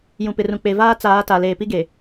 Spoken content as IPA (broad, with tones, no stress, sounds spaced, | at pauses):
j ũ˨ p ɪ˨ r ũ˨ k͡p e˨ v aː˦ t͡s aː˨˦ t a˨ l eː˨ p i˦ ɡ e˨